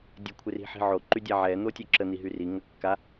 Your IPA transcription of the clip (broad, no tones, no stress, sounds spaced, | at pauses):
dʲ ə kʷʰ ɪ r i̤ ħ i̤ ʕ o ǃ y dʲ a ʕ ɛ n̪ o tʲ œ ǁ ə n̪ i ɦ y r i ŋ ə kː a